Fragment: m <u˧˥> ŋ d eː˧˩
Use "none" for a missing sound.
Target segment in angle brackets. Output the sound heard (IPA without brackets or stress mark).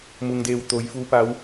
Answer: u˩